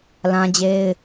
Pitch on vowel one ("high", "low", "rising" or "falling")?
high